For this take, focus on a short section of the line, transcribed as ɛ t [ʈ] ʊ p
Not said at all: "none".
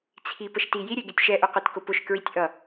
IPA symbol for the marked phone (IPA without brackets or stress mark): k